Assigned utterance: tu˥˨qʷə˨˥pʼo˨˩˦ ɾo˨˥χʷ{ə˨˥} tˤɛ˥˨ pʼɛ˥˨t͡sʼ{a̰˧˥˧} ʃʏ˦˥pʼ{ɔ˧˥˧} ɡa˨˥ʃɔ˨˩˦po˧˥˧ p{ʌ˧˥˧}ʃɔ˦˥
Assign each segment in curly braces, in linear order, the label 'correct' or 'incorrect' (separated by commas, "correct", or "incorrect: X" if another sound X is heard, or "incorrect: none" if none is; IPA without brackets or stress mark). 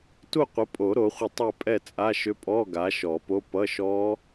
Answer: incorrect: ə˥˨, incorrect: a˧˥˧, correct, correct